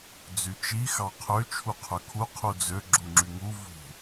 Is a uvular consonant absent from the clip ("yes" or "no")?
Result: no